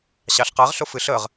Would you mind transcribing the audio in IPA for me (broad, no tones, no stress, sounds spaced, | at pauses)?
ɕ ɑ ɬ q a ʁ ɬ ʊ f ɨ ɬ ə ʁ